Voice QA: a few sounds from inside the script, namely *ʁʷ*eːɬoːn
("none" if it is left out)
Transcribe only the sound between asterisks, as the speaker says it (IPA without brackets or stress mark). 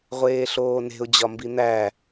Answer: ʁʷ